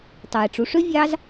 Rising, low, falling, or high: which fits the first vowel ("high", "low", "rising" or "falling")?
low